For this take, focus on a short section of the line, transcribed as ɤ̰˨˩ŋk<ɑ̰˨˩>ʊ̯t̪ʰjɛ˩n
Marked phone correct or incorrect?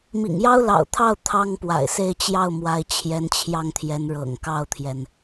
incorrect